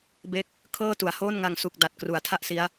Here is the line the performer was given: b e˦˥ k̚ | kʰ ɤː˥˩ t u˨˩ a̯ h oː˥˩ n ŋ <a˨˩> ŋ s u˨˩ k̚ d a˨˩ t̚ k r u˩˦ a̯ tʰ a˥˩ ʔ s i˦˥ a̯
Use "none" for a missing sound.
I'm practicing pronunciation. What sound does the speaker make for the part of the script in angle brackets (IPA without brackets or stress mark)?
a˧